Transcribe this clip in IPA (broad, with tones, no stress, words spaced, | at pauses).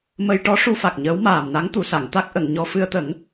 mə˧jʈɔ˧˥ ʂu˧fa˨˩k̚ ɲəː˧˥wmaː˨˩mna˧˥ŋ t̪u˨˩sa˨˩˨ŋ t̪a˦˥k̚ʔə˨˩˨ŋɲɔ˧ fɨ˧ə̯t̪ə˨˩˦ŋ